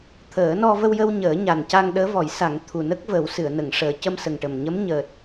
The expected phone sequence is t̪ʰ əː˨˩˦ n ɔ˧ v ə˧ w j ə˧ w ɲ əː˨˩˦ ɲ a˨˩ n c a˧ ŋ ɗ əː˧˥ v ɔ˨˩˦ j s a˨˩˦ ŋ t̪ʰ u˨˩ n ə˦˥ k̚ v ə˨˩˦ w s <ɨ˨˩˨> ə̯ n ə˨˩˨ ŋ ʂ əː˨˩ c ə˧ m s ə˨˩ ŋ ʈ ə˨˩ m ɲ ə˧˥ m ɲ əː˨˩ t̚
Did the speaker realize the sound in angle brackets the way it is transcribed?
yes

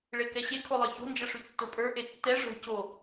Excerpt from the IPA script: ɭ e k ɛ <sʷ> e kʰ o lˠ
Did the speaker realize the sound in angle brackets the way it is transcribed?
no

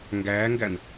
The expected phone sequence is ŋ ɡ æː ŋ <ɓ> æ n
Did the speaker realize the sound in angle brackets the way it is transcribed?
no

